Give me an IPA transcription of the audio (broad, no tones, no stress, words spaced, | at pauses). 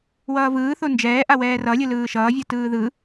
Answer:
wʌːvɯːθo nd͡ʒɛːʔawɛː rʌlʲɯlɯː ʃʌːvʲɯ tɯːðɯ